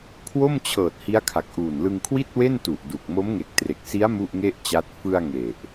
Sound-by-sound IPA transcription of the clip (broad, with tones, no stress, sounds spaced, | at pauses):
kʰ w o˥˩ m t͡ɕʰ ɤː˨˩ t̚ h i˦˥ a̯ kʰ a˨˩ k̚ ʔ uː˨˩ n l ɯ˧ ŋ kʰ w i˥˩ t̚ w e˥˩ n t u˨˩ ʔ d u˨˩ k̚ m o˦˥ m ŋ e˨˩ k̚ t r e˨˩ k̚ s i˦˥ a̯ m u˥˩ ʔ ŋ e˥˩ ʔ t͡ɕ a˦˥ t̚ f ɯ˧ a̯ ŋ e˨˩ ʔ